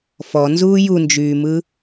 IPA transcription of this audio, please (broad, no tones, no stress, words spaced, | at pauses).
fɔnzuː jund͡ʒyːmɯ